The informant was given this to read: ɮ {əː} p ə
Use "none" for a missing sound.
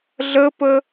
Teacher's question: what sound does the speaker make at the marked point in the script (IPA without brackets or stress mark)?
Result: əː